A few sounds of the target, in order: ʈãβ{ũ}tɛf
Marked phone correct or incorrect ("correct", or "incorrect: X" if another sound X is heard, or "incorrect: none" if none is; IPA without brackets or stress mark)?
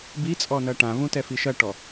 correct